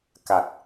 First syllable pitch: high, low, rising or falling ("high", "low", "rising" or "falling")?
low